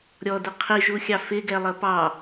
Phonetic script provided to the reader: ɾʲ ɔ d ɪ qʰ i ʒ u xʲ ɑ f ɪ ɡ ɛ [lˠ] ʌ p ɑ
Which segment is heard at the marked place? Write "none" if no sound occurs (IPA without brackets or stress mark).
lˠ